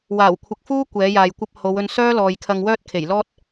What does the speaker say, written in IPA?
w aː˨˩ w kʷʰ ɪ˨ k̚ f uː˥ kʷ ɛː˨˥ j aː˨ j kʷ ɐ˥ p̚ h o˨˧ w ɵ˧ n s œː˥ l ɔː˨ j kʰ ɐ˧ ŋ w œː˥ t̚ kʰ e˨˩ j l ɔː˥ t̚

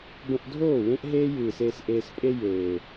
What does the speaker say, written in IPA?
b ə̃˧ ʔ dʱ oː˦˨ w ẽ˦ ʔ ɦ eː˦ j ɨː˨ s eː˧ s ʔ eː˧ s pʼ e˦ j eː˨

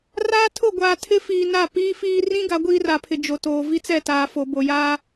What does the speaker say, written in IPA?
r aː˦ tʰ ʊ˦˨ ɡʷ aː˨ tʰ ɪ˦ f iː˨ n a˦˨ p iː˦ f iː˦ r ĩ˦ ɡ a˨˦ ɡʷ iː˦ r a˨ pʰ ɪ˨ d͡ʒ o˨ t oː˨ v i˦ t͡s ɛ˦˨ t aː˨ f o˨ b o˨ j aː˦

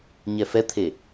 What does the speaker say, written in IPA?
ɲ ɛ f ɛ t̪ʰ e

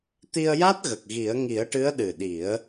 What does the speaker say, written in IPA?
t̪ i˧ ə̯ j a˦˥ t̚ ɣ ə˨˩ k̚ ɣ i˨˩˦ ə̯ ŋ i˨˩˦ ə̯ ʈ ɨ˧˥ ə̯ ɗ ɨ˨˩ ɗ i˨˩˦ ə̯

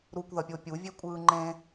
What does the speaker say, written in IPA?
ɾ u kʷ ð ʌ pʲ o pʲ u vʲ e kʷʼ ɯː ŋ͡ǃ ẽ

